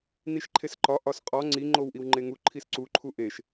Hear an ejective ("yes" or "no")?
yes